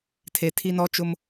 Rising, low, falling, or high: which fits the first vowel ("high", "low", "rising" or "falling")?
low